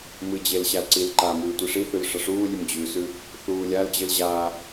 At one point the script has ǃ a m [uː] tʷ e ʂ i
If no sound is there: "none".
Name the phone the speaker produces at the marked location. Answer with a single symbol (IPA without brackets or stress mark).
ʉː